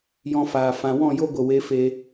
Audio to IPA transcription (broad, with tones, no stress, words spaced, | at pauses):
jɔ̃˧ faː˨ fã˨wɔ̃˦˨jo˦ɡʷə˨ we˨˦fe˧